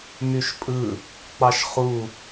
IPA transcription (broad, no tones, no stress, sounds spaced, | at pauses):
m y ʃ pʼ ɯ | k͡p ɑ ʃ χ u